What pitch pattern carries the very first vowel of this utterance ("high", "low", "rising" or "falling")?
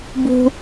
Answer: high